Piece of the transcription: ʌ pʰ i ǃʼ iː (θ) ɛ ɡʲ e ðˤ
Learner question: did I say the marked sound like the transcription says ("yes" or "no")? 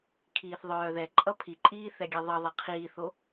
yes